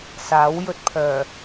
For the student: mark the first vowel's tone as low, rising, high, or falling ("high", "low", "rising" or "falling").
rising